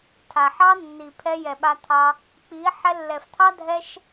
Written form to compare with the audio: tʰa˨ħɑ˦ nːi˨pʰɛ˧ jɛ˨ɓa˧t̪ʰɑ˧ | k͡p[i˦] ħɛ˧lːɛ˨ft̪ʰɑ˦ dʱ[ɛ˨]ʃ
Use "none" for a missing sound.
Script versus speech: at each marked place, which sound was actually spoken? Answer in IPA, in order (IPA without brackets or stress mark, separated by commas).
i˨˦, ɛ˦